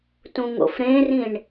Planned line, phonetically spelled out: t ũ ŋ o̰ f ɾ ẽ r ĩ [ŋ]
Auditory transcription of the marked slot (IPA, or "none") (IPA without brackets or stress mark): ɳ